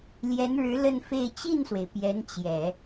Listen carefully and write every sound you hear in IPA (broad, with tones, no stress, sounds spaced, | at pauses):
l j ɛ˧˥ n ɻ ɻ̩˧˥ l ə˥˧ n f e˥˧ ɪ̯ t͡ɕ i˥˩ n s w e˩ ɪ̯ p j ɛ˧˥ n t͡ɕ j ɛ˨˩˦